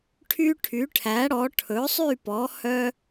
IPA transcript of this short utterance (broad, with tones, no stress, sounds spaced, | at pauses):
ʈʰ y˦ ʈʰ y˩˥ ʈʰ æ˩˥ ɽ ɔ˩˥ ʈʰ ɵ˩˥ sˤ y˥˨ p ɔ˩˥ h œ˦